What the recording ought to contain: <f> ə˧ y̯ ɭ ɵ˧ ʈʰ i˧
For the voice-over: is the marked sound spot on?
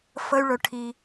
yes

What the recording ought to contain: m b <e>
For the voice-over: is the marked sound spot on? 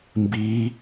no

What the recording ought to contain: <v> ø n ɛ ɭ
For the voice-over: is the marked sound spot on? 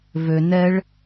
yes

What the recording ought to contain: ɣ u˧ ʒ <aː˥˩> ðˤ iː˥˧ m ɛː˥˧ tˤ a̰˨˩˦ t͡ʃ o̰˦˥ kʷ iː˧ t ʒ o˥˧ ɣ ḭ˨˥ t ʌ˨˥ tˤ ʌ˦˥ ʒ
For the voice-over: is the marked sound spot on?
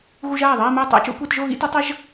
yes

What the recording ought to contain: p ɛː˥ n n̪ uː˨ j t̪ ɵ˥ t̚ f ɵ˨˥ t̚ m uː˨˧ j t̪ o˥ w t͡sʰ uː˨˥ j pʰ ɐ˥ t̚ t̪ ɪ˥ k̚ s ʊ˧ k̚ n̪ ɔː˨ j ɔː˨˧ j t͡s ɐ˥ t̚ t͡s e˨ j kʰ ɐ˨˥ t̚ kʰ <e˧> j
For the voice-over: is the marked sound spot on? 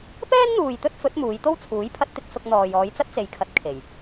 no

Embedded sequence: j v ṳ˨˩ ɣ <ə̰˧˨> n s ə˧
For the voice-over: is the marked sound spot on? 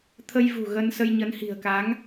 no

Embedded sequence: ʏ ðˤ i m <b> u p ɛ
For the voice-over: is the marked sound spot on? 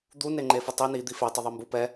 yes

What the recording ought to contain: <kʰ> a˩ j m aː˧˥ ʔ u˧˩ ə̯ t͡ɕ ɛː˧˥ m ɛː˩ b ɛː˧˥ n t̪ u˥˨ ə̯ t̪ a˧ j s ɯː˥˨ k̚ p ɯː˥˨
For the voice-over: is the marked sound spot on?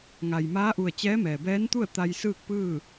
no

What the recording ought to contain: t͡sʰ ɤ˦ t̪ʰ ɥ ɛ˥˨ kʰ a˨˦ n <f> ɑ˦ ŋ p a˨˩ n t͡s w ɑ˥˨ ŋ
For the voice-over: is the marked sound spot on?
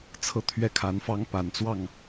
yes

